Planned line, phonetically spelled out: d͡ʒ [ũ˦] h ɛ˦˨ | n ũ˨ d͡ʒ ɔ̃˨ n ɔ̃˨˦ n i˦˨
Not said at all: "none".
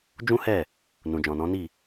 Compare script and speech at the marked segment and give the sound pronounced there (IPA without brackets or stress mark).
ũ˦